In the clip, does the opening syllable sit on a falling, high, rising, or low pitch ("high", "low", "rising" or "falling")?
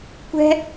high